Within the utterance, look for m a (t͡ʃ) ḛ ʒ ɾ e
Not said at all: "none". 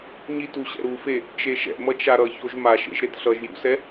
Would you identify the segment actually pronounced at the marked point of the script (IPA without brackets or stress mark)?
ʃ